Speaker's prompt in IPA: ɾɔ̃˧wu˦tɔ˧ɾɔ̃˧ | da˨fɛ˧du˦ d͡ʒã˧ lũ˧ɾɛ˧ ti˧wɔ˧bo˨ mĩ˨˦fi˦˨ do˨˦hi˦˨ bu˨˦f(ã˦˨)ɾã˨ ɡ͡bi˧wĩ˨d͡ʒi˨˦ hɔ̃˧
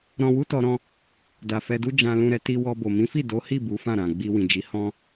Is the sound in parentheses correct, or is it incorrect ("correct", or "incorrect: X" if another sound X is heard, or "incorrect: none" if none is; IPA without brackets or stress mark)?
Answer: correct